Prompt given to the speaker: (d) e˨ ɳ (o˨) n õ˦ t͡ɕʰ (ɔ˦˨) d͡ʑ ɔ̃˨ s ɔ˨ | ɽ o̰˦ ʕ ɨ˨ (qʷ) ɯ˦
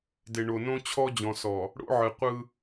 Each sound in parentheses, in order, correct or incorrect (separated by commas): correct, correct, incorrect, correct